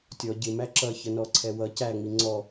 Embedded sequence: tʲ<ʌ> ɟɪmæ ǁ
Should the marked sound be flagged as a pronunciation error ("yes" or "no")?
yes